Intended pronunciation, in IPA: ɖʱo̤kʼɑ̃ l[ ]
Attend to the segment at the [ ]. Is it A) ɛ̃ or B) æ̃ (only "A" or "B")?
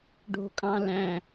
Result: B